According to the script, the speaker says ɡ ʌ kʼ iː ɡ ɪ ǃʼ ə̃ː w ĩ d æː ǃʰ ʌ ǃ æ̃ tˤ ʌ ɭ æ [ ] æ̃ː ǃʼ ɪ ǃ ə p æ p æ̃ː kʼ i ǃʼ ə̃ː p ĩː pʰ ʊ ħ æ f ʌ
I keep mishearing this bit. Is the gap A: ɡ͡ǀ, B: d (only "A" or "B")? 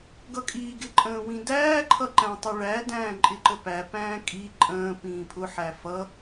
B